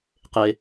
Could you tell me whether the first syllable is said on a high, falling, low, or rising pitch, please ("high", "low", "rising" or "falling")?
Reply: low